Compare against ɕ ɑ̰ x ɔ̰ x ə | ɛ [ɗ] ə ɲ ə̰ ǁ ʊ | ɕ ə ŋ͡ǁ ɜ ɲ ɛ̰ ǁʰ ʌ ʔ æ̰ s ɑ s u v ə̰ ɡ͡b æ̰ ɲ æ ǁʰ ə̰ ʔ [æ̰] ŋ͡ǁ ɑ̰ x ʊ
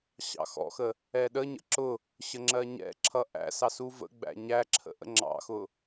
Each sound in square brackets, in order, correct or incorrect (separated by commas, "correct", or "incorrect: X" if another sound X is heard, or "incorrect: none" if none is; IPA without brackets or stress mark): correct, incorrect: ə̰